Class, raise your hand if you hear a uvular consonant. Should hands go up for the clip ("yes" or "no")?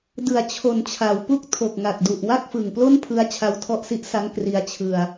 no